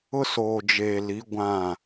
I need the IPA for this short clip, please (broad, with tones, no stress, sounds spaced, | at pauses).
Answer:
ʊ˦ s oː˨ d͡ʒ eː˨ l i˨˦ ɡʷ ã˦˨